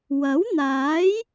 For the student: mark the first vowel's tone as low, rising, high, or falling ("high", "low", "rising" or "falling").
rising